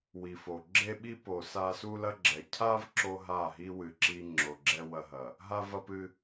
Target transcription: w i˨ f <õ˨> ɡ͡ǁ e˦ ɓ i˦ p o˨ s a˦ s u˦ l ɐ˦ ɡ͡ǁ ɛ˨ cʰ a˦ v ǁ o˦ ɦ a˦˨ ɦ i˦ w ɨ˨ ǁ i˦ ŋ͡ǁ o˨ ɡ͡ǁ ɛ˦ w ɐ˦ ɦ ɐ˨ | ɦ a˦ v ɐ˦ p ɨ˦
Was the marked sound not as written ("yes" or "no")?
yes